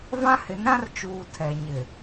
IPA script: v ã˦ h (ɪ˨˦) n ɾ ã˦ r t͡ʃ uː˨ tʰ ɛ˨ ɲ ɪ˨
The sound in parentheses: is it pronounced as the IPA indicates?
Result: yes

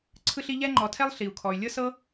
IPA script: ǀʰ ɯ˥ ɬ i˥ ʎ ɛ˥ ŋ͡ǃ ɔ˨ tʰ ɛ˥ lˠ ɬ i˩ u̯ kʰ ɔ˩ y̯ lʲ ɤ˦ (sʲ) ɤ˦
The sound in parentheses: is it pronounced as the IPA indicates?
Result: no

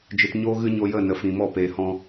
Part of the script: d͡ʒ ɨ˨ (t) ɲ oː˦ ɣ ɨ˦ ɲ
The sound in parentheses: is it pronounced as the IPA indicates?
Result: yes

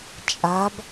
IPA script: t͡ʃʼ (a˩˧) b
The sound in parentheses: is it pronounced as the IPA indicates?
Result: yes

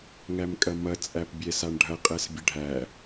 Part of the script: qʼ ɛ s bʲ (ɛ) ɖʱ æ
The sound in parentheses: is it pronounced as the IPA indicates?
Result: no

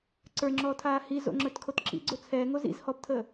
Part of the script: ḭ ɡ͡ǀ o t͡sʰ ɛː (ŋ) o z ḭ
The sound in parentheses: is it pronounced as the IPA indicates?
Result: yes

